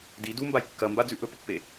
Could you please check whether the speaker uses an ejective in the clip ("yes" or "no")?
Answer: no